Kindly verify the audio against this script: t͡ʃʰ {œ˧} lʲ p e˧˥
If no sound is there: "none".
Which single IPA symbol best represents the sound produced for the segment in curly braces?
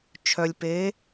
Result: œ˧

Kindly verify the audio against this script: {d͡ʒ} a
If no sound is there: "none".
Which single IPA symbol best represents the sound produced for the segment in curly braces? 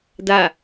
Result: d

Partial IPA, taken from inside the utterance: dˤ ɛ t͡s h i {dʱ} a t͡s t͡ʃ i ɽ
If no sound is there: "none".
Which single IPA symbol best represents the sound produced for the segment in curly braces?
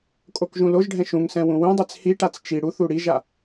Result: ʈ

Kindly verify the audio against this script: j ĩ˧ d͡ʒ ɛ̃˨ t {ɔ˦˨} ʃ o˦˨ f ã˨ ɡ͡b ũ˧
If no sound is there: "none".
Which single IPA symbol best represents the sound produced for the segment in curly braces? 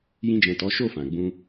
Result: ɔ˨˦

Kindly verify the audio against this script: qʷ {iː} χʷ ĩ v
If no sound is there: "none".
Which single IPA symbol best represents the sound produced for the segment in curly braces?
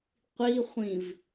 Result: i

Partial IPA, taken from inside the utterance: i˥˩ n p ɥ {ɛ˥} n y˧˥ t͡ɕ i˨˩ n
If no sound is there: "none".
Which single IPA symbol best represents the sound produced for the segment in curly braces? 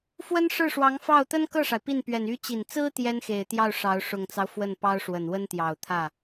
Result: ɛ˨˩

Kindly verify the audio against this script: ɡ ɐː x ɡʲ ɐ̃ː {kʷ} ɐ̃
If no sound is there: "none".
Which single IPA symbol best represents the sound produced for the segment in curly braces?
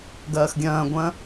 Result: ɡʷ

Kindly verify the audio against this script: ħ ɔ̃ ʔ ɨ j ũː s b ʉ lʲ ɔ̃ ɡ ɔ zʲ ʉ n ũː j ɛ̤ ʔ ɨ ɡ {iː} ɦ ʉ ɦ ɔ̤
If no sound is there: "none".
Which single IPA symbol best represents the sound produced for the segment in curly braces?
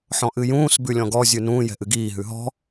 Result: iː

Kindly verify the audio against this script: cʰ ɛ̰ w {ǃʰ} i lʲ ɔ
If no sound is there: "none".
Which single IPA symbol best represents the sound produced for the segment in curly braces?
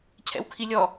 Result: kʰ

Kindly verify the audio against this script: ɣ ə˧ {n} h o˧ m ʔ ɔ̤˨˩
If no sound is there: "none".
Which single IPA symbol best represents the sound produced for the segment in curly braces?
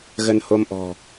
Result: n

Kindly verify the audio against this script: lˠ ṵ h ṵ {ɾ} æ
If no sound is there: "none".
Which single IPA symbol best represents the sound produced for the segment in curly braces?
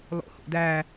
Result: d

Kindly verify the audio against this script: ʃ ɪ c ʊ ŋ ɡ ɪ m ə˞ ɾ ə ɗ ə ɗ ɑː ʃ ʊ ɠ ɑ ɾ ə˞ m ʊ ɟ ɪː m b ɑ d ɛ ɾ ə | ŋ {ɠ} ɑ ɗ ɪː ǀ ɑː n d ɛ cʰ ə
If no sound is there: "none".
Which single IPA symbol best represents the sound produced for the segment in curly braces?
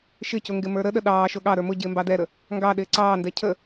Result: ɡ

